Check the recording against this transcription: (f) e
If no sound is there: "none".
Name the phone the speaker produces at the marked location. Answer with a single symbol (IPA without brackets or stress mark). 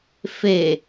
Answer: f